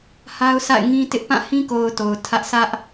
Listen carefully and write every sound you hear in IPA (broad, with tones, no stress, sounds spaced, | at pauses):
h a˦ ʊ̯ sʰ a̰˦˨ ɪ̯ ŋ ĩ˦ t ɪ˦ ʔ p ã˦˨ h ĩ˦ k o˨ ʊ̯ t o˨ ʊ̯ tʰ ä˦ ʔ sʰ ä˦ ʔ